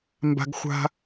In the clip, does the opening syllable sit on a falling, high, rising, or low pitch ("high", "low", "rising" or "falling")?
high